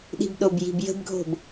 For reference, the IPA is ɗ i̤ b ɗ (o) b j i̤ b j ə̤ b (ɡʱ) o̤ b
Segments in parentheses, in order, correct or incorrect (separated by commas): correct, correct